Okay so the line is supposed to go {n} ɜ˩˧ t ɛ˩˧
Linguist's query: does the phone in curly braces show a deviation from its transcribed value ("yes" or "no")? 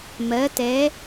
yes